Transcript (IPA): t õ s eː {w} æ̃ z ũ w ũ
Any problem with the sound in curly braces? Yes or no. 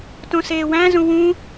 no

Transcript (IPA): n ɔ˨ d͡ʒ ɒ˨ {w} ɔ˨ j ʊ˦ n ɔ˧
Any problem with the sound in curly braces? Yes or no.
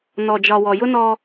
no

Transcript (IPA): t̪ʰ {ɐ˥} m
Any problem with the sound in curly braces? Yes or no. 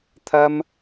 no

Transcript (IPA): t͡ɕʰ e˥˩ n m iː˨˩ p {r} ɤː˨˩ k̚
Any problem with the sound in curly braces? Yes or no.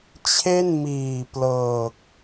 yes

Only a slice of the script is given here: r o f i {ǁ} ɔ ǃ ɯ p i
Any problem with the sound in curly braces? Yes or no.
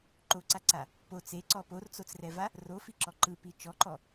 no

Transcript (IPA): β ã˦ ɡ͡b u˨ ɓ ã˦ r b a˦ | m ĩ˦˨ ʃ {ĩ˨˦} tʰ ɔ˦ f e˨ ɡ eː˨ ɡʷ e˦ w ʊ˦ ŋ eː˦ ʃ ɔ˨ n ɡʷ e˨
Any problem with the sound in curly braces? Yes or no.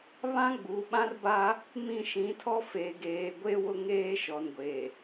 no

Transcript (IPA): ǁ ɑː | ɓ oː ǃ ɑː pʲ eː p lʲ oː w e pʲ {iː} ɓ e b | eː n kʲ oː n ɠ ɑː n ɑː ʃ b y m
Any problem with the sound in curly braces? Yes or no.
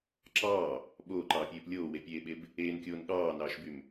yes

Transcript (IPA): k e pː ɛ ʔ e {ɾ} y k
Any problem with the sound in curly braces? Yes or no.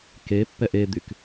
yes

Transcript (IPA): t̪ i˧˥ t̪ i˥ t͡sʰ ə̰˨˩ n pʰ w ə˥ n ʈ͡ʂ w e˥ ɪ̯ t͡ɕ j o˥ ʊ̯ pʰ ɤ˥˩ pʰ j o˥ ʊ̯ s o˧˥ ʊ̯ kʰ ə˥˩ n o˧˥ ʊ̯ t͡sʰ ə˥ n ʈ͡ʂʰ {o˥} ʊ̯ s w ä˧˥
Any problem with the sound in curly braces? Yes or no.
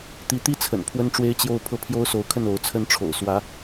yes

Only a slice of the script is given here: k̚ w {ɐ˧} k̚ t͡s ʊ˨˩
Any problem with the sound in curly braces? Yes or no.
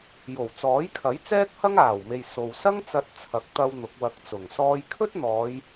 no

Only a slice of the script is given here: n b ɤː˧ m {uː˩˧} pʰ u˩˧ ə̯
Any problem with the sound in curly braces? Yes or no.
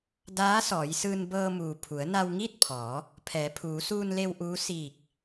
yes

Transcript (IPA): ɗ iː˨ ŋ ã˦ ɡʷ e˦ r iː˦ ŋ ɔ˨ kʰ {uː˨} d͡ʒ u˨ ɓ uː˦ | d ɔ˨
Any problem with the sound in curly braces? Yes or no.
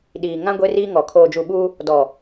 yes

